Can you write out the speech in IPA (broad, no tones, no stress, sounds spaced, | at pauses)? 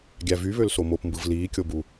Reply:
ɡʲ æ v y β ø l s o m o p m b ɯ v l iː kʲ o b u